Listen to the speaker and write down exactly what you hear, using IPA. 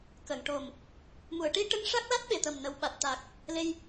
kə˨˩˨ŋʈo˨˩m | mu˨˩˨ə̯ʈi˧ʈə˧ŋ ʂa˦˥k̚la˦˥t̚ɓe˨˩˨ t̪ə˨˩mnə˨˩wɓa˨˩t̚t̪aː˨˩k̚ | le˧j

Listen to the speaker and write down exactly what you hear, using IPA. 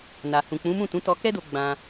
na˨ hũ˨k͡pũ˨˦mũ˦˨ tũ˨˦tɔ˧kɛ˦do˧ ɡ͡bã˧

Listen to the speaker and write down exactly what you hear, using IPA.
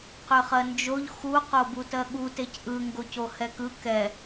qʏχɜnd͡ʒoʎ xu qobutɜɠu tecʔɯ ŋɡocohɛkɯ kɛ

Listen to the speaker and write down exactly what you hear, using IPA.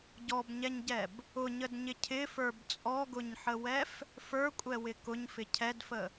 ɟɔbɲɛɲɟɛb | ʊɲədɲɪ cʰɪfə˞b t͡sʼɔɡʊɲħəwɛf | fə˞kʷʼɛwɪ kʊɲfɪ cʰɛdfə

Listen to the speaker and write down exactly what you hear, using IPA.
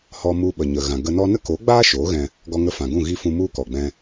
hɔ˧mu˧ɓə˨ɲə˨ ɣã˨ ɡə˧nɔ˦ nə˦koː˨˦ɡ͡baː˦ ʃoː˨˦ɣɛ̃˧ | ɡɔ˧ŋə˧fã˨ɡũ˦˨ ɣi˦ fũ˧ mu˦kɔ˨ɡ͡bɛ̃˧

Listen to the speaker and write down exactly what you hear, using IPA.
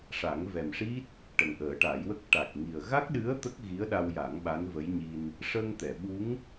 ʂa˨˩˦ŋvɛ˨˩mʂi˦˥t̚ | ʈə˨˩ŋʔəː˨˩˦ʈa˨˩˦jwə˦˥k̚ ʈa˨˩k̚ŋi˨˩ə̯ ɣa˦˥k̚ɗɨ˧˥ə̯ t̪ə˦˥k̚ɣi˧˥ə̯ɗa˧wja˨˩˦ŋ ɓa˧˥nvə˧˥jɲi˧n | ʂə˧ŋt̪ɛ˨˩˨ɓu˧˥ŋ

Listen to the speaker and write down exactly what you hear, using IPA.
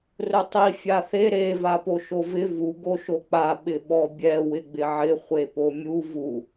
rʊtˤi fʲaθe ɾe vapoʃovɪ vu ɡoʃok͡pa ɓɪɓɔbʲɛ wɪɡ͡bɪʕɪ χʷepomʲu vu

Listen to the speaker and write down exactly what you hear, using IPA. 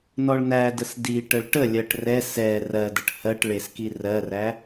nɔɭnædəs diʈəɭ ʈəlʲɜʈ rɛ sɛ rɜdəʈ hɜʈ ɭeski rɜræ

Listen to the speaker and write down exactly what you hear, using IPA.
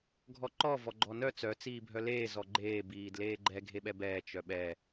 ɡʱɔǃɔ vɔɡ͡ǃɔnœ t͡sœ t͡siːbʱœleː zɔɡ͡ǃeː biːdleːɡ͡ǃɛ ɡʱeɓɛbɛː t͡ʃœɓɛ

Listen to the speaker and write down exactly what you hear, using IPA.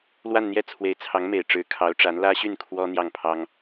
lwa˥˧nn̪jɛ˥˩ t͡sʰwe˧˥ɪ̯t͡sʰɑ˧˥ŋme˨˩ɪ̯ ʈ͡ʂɻ̩˧˥ kʰɑ˧˥ʊ̯ʈ͡ʂa˧˥n lä˥ɕy˥˩n kʰwɔ˥ n̪jɑ˥˩ŋ pʰɑ˥ŋ

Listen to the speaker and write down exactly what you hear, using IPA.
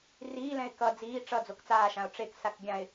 riːlɛ̃ɪ̯ kʌ d͡ziː ʈ͡ʂʌ d͡zokt͡saːʃãʊ̯ ʈ͡ʂeksak ɡʲãɪ̯

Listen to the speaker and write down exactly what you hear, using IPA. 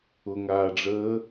ʊŋaːɖ͡ʐəː

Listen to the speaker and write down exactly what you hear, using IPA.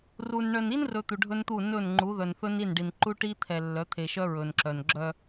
ru˨n ɳœ˨ni˦nrɵ˨ t̪u˨ɖʱɵ˦nt̪u˦˨ nɵ˦˨nŋ͡ǃu˨˦ ðœ˨nθɵ˦ni˦˨nɖi˨n ǃu˦ʈi˦ t̪ʰɛ˨ lːœ˨˦t̪ʰe˨ʃœ˦ ɹɵ˨nǁœ˨n ɡ͡ǁœ˦

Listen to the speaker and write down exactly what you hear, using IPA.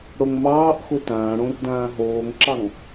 ɽoŋmɑːʔxʊ tãːɽõr dãːɦoːŋǁɑŋ

